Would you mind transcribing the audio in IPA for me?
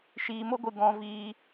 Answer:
ʃiː˨mo˦ɡʷɨ˨ ɡɔ̃˨viː˨

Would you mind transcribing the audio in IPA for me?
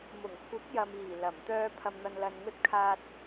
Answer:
mʊ˨˩ŋkʷʰɪ˨˥k̚jɐ˨miː˨˩ lɐ˨˩mt̪œː˧ pʰɐ˨mn̪ɐ˨nlɐ˨nŋɵ˧t̚ kʰaː˧t̚

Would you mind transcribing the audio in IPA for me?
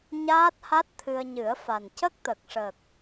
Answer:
ɲaː˦˥t̚ha˦˥t̚t̪ʰɨ˧ə̯ ɲɨ˨˩˦ə̯fa˨˩n cə˦˥k̚t̪ə˨˩k̚ ʂə˨˩k̚

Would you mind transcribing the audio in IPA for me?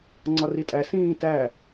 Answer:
ŋ͡ǀɒritʼæ sĩː tæ

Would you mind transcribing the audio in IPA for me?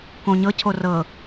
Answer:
kõɲɤcʰo rɤ

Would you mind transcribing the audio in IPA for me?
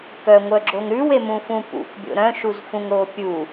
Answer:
kœŋʷœɡ͡ǁoŋ ɾʉwemũfũ pṵkbʲo̰ ɾœ̃ʃuzfũŋɾo pʲu

